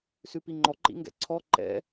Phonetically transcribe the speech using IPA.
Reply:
s ʉ p i ŋ͡ǃ ɔ ǃ ḭ ŋ ɡ ɛ̰ ǀʰ ɔ ǃ ɛ̰

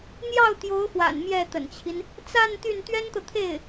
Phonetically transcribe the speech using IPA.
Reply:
n̪ j ɑ˥˩ ʊ̯ t̪ j o˧˥ ʊ̯ x w a̰˨˩ n m j ɛ˥˩ t̪ ə̰˨˩ n t͡ɕʰ i˦ n | t͡s a˥˧ n t̪ y˥˩ n t̪ ɥ ɛ˥ n t̪ ɤ˨ t̪ʰ e˥˩ ɪ̯

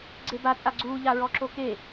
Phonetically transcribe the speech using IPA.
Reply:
ɡ͡ǀ e b a t͡sʼ a ɡ͡ǀ uː ʎ a ɹ ɔ ǁ o k e

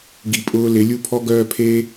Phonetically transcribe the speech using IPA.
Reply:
ɡ i˧ pʼ ʊː˦ l ɪ˨˦ lʲ u˦ pʰ ɔ˦ ɡ œː˦ pʰ e˦

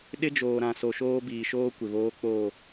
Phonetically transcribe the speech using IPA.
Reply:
ɗ ɪ˦ d͡ʒ oː˨ ɾ ã˨ s o˨ ʃ oː˦ b iː˨ ʃ oː˦ kʷ ɪ˨ β oː˦ k͡p oː˦˨

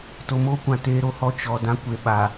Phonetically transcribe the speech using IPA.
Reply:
t o˨ m oː˦ kʷ ã˨ t eː˦ ɾ o˨ h ɔ˦ t͡ʃ ɔ˨ d ã˦ kʷ e˨ ɓ a˨

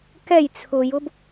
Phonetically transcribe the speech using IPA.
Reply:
k ɛ j t͡sʰ ʊ j ʊ b

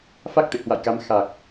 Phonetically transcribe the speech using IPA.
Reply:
f a˦˥ k̚ t̪ ḛ˧˨ h w a̰˧˨ j k a˨˦ m x a˨˩ k̚

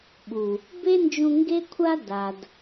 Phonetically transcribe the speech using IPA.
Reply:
ɓ u˨ | b e˦ n d͡ʒ ũ˧ ŋ ɡ e˦ kʷʰ a˦ d a˨ d

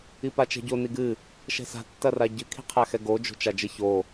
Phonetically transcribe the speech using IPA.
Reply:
i p a t͡ʃ ɛ̤ ɟ o n i ɡ ɨ | ʃ ɛ̤ s a̤ tː ɐ r a ɟ ɨ kʰ i̤ qʰ a x ɛ ɡ o d͡ʒ o̤ t͡ʃ a d͡ʒ ɘ ç o

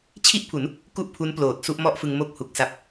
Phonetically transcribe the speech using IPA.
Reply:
t͡ɕʰ i˥˩ ʔ pʰ u˩˦ n | k u˥˩ ʔ pʰ u˦˥ n p l oː˨˩ t̚ s u˥˩ ʔ m ɔ˥˩ ʔ f ɯ˧ ŋ m o˥˩ k̚ h u˨˩ k̚ s a˦˥ p̚

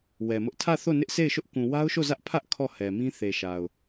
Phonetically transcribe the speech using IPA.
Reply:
w ɛ˨ m ʊ˦ ʔ tʰ ä˦˨ θ o˦˨ n ɪ˦ ʔ s e˦˨ ɪ̯ ʃ ʊ˦ ʔ k ũ˨ w a˦ ʊ̯ ʃ o˦˨ z ä˦ ʔ pʰ ä˦ ʔ kʰ ɔ˦˨ h ɛ˨ m ĩ˦ θ e˨ ʃ a˨ ʊ̯

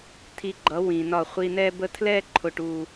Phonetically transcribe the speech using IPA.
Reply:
tʰ i˧ ɡ͡ǃ ʌ˨˦ w ĩ˨ n ɒ˦˨ χʷ i˧ n ɛ˦ b ə˦ tʰ l ɛ˦ ǃʰ ʊ˨ ʈ u˨

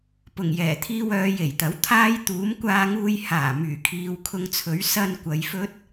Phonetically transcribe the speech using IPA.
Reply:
p ʊ˨˩ ŋ j ɛː˨˩ t̪ʰ iː˧ w œː˨˧ j e˨˩ j t̪ ɐ˨˥ w t̪ʰ aː˥ j t̪ uː˨˥ m kʷ aː˧ ŋ uː˧ j h aː˨˩ m yː˨˩ kʰ iː˨˧ w kʰ ʊ˧ ŋ t͡sʰ ɵ˨˥ ɥ s ɐ˧ n kʷ ɐ˨˧ j f ɵ˥ t̚

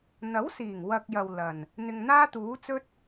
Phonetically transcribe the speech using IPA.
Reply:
n̪ ɐ˨˥ w s iː˨˩ ŋ w ɐ˨ k̚ j ɐ˨ w l ɐ˨˩ n | n̪ ɪ˨ ŋ n̪ aː˥ t̪ uː˨˥ t͡s ɵ˥ t̚

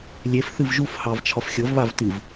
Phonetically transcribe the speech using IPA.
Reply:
lʲ e f θ ɨ v ʒ u f h ɑ v t͡ʃʰ ɒ f xʲ ɤ v β a v t ɨ v

